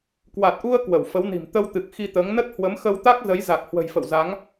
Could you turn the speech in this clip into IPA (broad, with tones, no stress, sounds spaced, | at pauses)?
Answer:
k w a˨˩ t̚ ʔ u˧ ə̯ k w ə˧˩ w f ə˨˦ w n i̤˨˩ m t̪ ə˧ w t̪ ɨ˨˩ k̚ x i˧ t̪ əː˨˦ ŋ n ə˦˥ t̚ h w ə˨˦ m x ə˧ w t̪ a˦˥ k̚ z ə˨˦ j z a˨˩ k̚ h w ə̤˨˩ j f ə̰˧˨ w z a˨˦ ŋ